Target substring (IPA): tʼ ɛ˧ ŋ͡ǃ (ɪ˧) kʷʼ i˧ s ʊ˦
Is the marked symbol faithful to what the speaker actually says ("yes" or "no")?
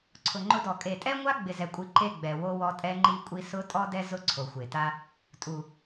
no